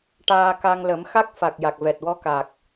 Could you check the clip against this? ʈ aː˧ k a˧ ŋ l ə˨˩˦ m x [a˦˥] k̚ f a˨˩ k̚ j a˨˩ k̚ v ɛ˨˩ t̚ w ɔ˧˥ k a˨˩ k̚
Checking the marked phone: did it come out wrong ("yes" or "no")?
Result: no